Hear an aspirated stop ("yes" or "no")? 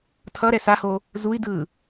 yes